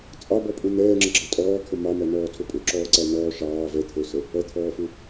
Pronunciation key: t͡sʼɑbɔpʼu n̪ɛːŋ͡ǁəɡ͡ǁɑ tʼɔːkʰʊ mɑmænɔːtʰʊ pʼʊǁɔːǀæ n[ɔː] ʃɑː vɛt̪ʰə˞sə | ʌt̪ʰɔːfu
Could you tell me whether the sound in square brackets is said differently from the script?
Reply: no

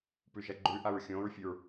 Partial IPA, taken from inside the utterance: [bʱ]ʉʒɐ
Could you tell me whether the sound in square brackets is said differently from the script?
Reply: yes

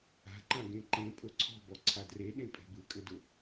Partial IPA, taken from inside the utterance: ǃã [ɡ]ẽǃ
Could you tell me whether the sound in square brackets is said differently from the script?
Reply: no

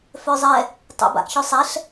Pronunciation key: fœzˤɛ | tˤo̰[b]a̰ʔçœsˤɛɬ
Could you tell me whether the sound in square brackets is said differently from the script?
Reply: no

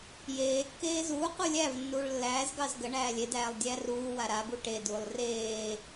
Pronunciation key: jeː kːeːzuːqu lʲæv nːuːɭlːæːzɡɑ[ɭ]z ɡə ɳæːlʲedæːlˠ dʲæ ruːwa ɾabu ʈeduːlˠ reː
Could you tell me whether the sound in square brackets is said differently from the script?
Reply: yes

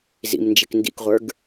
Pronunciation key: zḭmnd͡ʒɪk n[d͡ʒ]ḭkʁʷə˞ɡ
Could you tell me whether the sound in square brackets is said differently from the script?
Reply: yes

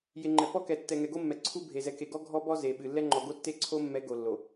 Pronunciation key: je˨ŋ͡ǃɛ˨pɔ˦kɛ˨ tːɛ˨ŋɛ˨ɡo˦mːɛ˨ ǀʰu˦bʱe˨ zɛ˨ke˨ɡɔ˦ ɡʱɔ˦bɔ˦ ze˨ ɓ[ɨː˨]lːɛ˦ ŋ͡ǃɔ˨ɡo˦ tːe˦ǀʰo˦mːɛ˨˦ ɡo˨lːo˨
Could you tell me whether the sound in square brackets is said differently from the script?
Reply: yes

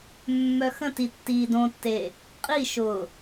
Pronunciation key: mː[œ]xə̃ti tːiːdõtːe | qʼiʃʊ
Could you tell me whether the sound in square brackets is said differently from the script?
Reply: no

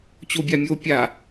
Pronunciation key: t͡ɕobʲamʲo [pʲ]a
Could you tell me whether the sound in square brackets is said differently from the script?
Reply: no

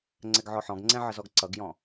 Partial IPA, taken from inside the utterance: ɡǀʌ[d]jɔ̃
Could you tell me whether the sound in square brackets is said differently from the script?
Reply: yes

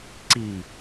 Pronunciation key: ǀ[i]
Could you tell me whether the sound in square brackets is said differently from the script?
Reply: no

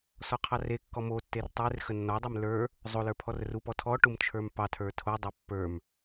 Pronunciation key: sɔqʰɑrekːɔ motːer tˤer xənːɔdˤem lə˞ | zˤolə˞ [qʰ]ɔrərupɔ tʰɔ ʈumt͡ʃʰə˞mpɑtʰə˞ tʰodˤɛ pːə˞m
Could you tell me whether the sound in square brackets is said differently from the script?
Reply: yes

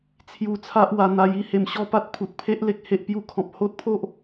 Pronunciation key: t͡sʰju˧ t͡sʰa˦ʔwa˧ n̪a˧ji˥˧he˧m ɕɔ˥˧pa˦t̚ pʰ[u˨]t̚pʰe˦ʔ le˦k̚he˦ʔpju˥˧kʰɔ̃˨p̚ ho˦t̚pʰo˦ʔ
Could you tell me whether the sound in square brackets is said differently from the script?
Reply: no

